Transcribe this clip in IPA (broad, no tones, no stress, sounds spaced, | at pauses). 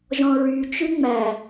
ʒ ɔ̃ ɹ y t͡ʃ ʉ ŋ͡m æ